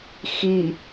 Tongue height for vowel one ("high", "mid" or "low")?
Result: high